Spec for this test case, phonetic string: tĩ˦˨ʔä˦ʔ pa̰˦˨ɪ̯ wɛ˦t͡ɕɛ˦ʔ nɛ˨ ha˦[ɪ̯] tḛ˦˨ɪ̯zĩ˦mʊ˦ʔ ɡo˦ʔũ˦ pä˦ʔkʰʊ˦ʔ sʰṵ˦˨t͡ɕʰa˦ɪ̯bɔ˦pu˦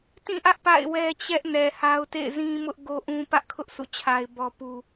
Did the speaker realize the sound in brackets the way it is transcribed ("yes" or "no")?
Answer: no